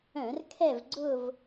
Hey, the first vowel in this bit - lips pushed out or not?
yes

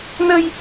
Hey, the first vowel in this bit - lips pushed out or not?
no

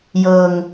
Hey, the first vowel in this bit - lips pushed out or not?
no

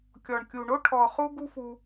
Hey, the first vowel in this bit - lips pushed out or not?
yes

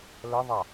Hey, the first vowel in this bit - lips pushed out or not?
no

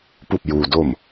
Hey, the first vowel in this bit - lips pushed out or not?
yes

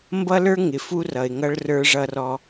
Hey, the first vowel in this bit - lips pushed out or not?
no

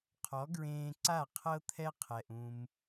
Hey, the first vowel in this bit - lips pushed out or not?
yes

